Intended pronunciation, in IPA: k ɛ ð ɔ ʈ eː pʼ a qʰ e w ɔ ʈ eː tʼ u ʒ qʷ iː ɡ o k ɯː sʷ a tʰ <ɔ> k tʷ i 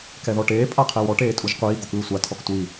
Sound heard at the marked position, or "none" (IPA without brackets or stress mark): ɔ